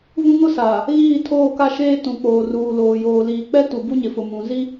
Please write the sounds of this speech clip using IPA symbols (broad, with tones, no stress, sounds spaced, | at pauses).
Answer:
v ũ˦ ŋ ʊ˦ s aː˨ | ɣ iː˦˨ tʰ oː˦˨ k a˦ ʃ eː˦ t ũ˨ k͡p oː˨ r uː˨ l oː˨ j oː˨ l iː˨ k͡p ɛ˦ t u˨ b u˦ ɲ ɪ˨ f ʊ˨ m ũ˨ z i˦